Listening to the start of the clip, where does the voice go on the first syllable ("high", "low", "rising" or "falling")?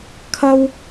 high